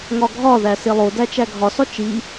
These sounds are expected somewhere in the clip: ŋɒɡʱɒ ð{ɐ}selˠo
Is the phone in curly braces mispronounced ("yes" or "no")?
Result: yes